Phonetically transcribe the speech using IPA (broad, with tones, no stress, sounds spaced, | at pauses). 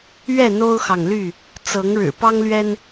ɥ ɛ˥˨ n̪ o˦ ʊ̯ x ɑ˨ ŋ l y˥˨ | t͡s ɤ˨˦ ŋ ɻ ɻ̩˨˩ p ɑ˦ ŋ l ɥ ɛ˦ n